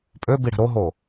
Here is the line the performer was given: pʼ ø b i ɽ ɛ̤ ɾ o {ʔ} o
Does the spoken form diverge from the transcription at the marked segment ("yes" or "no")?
yes